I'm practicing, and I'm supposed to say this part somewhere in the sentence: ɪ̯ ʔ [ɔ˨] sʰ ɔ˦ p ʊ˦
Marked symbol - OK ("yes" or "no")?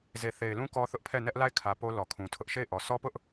yes